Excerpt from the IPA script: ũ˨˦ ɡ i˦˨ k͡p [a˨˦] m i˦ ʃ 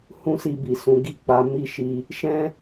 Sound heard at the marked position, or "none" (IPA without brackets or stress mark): a˨˦